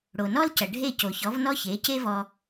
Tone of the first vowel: low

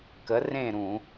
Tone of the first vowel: rising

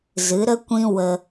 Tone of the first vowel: rising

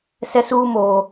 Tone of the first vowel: high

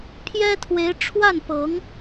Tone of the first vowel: high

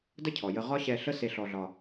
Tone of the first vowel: high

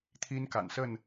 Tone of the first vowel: high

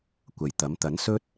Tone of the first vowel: low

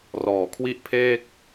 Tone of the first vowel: low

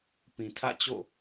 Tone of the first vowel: low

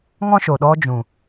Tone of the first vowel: high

